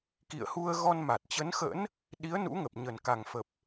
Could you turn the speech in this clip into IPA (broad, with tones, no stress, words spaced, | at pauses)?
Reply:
kḭ˧˨ə̯hu˧ə̯ ɣɔ˧nma˨˩t̚t͡ɕə˨˦nxə̰ː˧˥n | ɗi˨˦ə̯nṵ˧˥ŋə˨˩p̚ ɲə˨˩nka˨˩ŋfə˨˩p̚